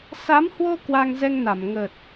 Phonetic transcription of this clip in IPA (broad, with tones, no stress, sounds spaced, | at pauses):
s a˨˦ m h w o˧ k w a˧ ŋ z ɛ˧ ŋ n a˧˩ m ŋ ə˨˩ t̚